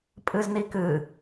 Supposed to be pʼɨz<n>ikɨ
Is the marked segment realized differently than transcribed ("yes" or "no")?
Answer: no